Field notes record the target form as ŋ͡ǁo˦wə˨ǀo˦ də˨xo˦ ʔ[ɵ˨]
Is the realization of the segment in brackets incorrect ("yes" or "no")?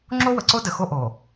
yes